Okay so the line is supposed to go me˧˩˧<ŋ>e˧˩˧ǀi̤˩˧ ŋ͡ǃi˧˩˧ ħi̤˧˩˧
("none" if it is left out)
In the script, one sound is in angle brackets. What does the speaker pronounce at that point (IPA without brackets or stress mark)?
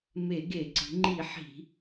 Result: ɡ